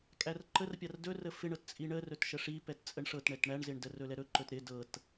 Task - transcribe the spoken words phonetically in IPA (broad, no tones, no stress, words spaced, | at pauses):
kʼærǃər pʲardɵ rəfɪɳɤt t͡sʼiɳə rɵtʃəʂipɛt t͡sʼəɳʂɤtɳɛt ɳæɳzɪɳdə rɵlɛɾɵ ǃɵtɾɪ dɤt